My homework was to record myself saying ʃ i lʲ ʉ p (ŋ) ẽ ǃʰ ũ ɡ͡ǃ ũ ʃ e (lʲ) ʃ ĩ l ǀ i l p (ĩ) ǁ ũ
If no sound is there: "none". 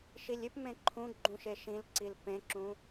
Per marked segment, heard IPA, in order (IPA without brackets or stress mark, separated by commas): m, none, ẽ